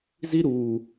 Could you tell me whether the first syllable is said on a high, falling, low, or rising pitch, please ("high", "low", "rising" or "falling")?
high